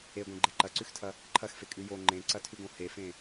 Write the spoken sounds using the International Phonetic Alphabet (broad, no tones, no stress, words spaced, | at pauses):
eɡʷẽɡ͡ǃe ǃɐǀʉxtʰɐ | ǃʰɐxfekʼʉ jo ŋ͡ǃẽǀɐtʰʉɡõ hefẽ